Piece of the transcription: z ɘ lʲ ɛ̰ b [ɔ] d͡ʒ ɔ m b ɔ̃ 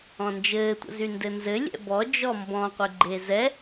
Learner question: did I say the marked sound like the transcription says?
yes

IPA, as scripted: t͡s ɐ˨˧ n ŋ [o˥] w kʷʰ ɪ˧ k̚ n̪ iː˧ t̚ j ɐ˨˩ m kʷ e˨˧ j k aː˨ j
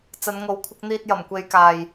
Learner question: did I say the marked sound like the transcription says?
no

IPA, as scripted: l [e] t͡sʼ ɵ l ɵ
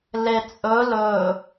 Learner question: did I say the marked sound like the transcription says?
yes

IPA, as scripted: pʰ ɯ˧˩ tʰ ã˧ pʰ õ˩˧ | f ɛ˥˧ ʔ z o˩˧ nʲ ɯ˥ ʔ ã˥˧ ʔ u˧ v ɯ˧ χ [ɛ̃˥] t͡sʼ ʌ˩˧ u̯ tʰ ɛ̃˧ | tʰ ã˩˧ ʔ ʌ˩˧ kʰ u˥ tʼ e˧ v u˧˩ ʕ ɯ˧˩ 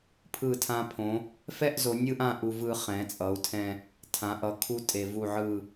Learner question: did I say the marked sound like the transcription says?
no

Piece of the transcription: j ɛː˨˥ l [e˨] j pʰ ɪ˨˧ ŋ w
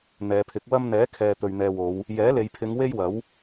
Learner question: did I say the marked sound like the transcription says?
yes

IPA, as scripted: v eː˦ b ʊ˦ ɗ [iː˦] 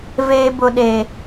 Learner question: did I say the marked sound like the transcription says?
no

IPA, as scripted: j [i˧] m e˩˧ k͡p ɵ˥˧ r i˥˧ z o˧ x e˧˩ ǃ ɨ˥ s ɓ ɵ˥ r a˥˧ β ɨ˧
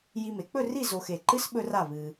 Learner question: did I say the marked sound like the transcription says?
yes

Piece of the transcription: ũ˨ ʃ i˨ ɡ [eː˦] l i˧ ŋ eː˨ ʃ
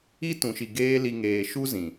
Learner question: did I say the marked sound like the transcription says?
yes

